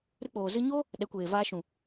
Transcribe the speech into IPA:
ɾɨ˧k͡poː˨zɨ˧ɲo˦ | ɗɛ˨˦kʷeː˨vaː˧ʃũ˨

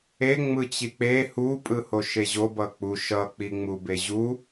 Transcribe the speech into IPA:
e ŋ͡mɯt͡ɕik͡pe hu pʼɯhoʃeʑo bʌk͡pu ʃʌ k͡piŋ͡mubeʑu

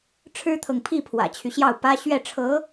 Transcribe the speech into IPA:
ʈ͡ʂʰɻ̩˥t̪ʰɤ˨ŋpʰi˥˩ pʰwä̰˨˩t͡ɕʰy˦ɕjɑ˥˩ʊ̯pä˥ ɕɥɛ˥˩ʈ͡ʂʰɤ˧˥

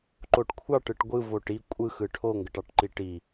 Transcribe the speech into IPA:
ǃoʈkʷʰɑʈɯʈ ɡʷɯvoʈ i kʷʼɯxɯ ʈʰoŋɡəʈɑʈǃi ʈi

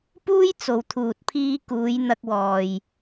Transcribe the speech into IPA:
puː˥j t͡so˨wt̪ʰuː˨t̚pʰiː˧kuː˨˧j n̪ɐ˧k̚wɔː˨j

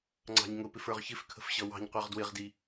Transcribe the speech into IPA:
ŋ͡ǀɑ̤ɲŋʊpɪf ə˞ʁçɪfkʰə̤f ɕʌwɑ̤ɲqʷɑʁ dwɪʁdi

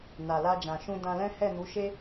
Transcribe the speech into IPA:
na˨la˧d͡ʒã˨ʃũ˧ dã˧lɛ̃˦ hɛ˦˨nu˨˦ʃe˦

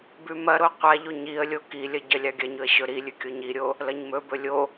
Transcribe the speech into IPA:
bʉmɐɾo qʷaʎo ɲiə̯lʲo kilʲɐ ɟɐlʲaɡʲɐɲɵə̯ ɕɵɾilʲʉ kʲoɲiɾʲo | lɐɲmɵbɵ lʲo

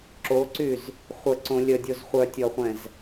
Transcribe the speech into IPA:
ǁoǀyz | χʷəǀõ lʲədʲoz χʷœtʲɔχʷɛ̃z

